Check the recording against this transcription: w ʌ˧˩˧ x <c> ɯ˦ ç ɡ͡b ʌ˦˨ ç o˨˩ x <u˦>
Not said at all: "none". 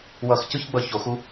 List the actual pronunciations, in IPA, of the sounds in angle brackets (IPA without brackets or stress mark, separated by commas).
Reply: c, u˦